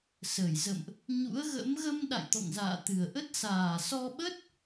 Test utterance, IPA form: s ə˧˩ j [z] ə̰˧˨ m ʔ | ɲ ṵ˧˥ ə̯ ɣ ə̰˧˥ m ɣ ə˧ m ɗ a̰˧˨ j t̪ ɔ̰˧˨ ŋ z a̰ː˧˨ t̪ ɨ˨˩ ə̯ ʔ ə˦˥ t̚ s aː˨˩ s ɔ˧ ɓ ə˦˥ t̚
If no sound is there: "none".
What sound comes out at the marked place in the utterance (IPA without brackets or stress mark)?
z